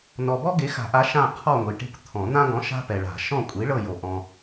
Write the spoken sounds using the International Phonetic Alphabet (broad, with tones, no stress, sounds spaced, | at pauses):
n ɔ˨ b ɔ˦ ɡ e˨˥ x a̤˨˩˦ ʔ a˨˥ ʃ ã˦˨ qʰ ɔ˦˨ ŋʷ i˨ ʈ e̤˦ kʷ t̪ʰ ɔ̃˨˩˦ n̪ ã˦ ɡ ɔ̃˨˥ ʃ a̤˦ p ɛ˨ ɭ a̤˨˩˦ ʃ ɔ̃˦˨ kʷʼ i˨˥ ɭ ɤ˦˨ j o˨ ʔ ɔ̃˨